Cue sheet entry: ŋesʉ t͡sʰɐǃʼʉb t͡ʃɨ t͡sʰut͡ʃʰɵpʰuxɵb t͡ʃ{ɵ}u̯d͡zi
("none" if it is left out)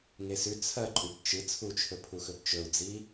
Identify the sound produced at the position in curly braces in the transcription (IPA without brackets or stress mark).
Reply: ɵ